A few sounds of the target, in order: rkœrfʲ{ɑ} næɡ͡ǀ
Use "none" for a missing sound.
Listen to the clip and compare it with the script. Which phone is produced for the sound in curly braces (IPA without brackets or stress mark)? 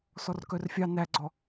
ɑ